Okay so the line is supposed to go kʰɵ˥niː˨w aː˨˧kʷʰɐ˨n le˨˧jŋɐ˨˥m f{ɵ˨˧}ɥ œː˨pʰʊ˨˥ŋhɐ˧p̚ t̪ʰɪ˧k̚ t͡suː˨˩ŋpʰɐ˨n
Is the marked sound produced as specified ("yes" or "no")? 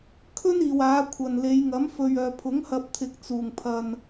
no